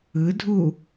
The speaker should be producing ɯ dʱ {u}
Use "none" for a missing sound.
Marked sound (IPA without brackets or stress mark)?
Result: u